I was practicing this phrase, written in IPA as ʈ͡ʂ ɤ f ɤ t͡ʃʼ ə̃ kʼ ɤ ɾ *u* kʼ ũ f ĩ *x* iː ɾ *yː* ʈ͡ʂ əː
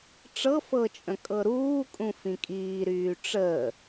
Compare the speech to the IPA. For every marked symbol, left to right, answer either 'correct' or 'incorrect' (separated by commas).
incorrect, incorrect, correct